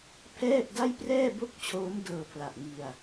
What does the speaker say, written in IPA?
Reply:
pʰ ɛː˥˩ p̚ d a˥˩ j p r ɛː˥˩ b o˥˩ k̚ t͡ɕʰ oː˦˥ m d ɤː˧ pʰ l a˨˩ ʔ ŋ i˧ a̯

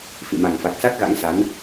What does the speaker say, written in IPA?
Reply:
f ḭ˧˨ m a˨˩ ŋ f a˨˩ k̚ s a˦˥ k̚ ɣ a̰˧˥ ŋ s a˨˦ n

